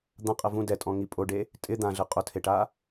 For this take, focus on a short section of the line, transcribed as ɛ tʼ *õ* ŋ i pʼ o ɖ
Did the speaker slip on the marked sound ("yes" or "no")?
yes